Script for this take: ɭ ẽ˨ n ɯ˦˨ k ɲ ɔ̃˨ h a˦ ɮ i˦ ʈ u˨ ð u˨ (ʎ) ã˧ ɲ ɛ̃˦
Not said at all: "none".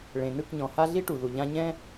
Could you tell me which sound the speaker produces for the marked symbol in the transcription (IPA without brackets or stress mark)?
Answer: ʎ